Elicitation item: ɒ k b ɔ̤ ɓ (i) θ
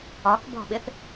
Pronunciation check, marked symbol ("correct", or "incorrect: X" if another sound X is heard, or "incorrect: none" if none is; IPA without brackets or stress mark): incorrect: ɪ